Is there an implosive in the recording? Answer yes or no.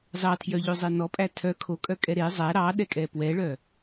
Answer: yes